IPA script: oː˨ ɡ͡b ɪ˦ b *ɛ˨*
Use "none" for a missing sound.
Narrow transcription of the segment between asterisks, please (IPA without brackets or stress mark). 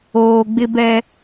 ɛ˦